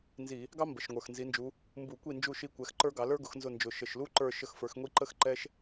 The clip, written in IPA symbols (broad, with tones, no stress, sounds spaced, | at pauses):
n z i˧˩˧ | ɡ ɑ˥ m b ə˨˩ ʃ ŋʷ ə˞˨˩ x n z i˨˦ n d͡ʒ u˨˦ | m b u˧˩˧ kʷ i˦˨ n d͡ʒ u˦˨ ʃ i˦˨ kʷ ɛ˨˦ x ǃ ə˞˥ ɡ ɑ˨˦ l ə˞˥ ɡ ʊ˨˦ x n z ʊ˦˨ n d͡ʒ ʊ˨˩ ʃ ə˨˩ ʃ l u˥ ǃ ə˞˦˨ ʃ ə˦˨ x f ə˞˨˦ x ŋʷ i˥ ǃ ə˥ x ǃ ɛ˥ ʃ